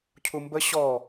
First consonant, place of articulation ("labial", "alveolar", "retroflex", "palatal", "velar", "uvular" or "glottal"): palatal